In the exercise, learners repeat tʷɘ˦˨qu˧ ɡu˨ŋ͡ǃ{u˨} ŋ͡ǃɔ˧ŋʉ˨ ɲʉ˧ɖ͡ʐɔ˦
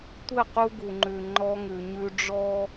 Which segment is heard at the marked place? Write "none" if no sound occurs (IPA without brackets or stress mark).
ʉ˨